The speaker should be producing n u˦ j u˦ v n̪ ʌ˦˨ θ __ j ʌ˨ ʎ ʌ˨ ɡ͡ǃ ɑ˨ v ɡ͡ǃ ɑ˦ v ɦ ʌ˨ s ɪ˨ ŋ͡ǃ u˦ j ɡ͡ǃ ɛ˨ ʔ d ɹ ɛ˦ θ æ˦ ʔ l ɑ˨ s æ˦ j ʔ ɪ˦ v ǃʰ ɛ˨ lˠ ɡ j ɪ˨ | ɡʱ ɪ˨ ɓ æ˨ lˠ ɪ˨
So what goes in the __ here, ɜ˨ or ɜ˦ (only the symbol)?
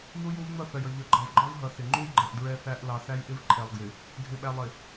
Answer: ɜ˨